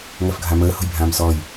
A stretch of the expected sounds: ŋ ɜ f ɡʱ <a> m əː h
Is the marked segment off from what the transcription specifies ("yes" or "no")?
no